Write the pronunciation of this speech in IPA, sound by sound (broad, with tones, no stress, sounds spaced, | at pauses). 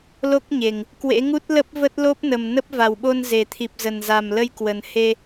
l o˦˥ k̚ ɲ e˨˩ ŋ | k w ḛ˧˥ ŋ u˦˥ t̚ l ə˦˥ p̚ v ə˦˥ t̚ l o˦˥ p̚ n ə˨˩ m n ə˦˥ p̚ v a˨˩ w ɓ o˧ n z e˨˩ t̪ʰ i˨˩ p̚ z ə˨˩ n z a˨˩ m l ə˧ j k w ə˨˩ n h e˧